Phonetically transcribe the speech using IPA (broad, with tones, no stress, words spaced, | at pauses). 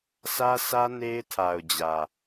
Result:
sä˦sʰä˦ ne˦ɪ̯tʰa˨ʊ̯d͡ʑä˨